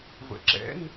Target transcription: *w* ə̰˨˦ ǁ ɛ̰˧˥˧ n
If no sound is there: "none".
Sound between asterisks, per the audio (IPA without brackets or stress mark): v